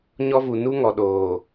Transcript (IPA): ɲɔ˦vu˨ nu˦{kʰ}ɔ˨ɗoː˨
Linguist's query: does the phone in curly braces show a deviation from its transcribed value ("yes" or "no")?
yes